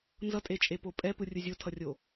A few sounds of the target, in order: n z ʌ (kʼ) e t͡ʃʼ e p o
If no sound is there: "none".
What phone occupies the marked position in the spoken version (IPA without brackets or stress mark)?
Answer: tʼ